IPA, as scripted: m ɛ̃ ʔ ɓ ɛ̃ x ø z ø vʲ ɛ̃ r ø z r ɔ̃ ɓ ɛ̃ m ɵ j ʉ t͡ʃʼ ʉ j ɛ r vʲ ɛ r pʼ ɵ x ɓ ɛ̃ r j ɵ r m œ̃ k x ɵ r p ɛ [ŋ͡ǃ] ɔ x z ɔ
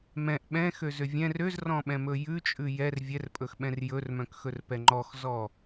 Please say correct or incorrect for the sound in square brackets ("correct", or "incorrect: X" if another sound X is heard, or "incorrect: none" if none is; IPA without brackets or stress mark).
correct